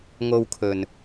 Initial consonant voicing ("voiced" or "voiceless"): voiced